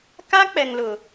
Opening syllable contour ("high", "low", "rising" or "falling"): high